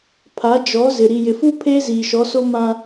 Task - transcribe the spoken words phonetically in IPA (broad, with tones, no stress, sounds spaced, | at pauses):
pʰ a˨˦ d͡ʒ ɔ˨˦ z ɪ˨ ɾ i˨ j ɪ˨ f u˦ pʰ eː˦ z iː˨ ʃ ɔ˨˦ s o˦ m ã˦